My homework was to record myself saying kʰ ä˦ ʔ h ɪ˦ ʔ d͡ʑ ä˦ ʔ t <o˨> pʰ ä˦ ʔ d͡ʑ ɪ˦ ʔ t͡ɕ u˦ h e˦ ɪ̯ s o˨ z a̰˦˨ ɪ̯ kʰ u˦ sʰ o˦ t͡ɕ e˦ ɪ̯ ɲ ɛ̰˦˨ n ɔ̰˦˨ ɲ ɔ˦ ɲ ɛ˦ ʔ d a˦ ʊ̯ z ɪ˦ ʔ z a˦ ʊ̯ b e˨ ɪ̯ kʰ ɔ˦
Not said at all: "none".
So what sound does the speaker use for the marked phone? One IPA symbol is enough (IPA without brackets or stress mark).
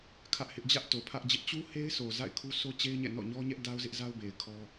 o˨